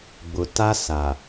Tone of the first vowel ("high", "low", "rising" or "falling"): low